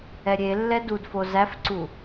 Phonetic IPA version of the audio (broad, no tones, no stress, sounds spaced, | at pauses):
ɛ ɾʲ e lː ɛ d u d f o z æ f ǀ u